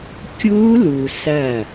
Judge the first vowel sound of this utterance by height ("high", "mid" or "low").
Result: high